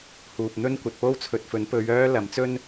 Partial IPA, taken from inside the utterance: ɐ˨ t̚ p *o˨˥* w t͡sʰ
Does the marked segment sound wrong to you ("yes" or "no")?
yes